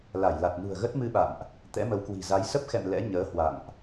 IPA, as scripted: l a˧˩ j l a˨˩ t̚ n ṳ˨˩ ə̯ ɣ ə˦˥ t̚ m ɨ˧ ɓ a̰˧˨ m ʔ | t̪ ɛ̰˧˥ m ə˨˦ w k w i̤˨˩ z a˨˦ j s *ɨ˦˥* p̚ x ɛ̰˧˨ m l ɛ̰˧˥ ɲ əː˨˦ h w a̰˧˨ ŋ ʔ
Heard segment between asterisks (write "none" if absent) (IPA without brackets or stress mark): ə˦˥